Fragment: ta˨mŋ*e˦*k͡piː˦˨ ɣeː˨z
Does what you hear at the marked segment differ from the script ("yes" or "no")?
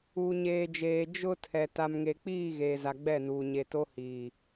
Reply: yes